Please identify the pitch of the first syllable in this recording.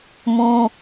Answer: high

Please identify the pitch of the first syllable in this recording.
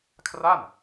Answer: falling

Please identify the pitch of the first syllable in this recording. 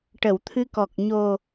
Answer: low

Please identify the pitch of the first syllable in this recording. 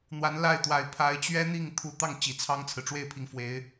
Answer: rising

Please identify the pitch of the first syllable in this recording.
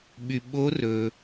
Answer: low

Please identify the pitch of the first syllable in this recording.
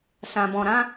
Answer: low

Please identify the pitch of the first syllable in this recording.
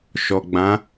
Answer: low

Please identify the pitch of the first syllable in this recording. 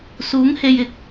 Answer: rising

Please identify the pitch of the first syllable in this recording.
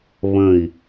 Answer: low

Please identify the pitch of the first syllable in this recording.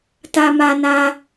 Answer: high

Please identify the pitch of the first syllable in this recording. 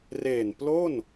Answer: low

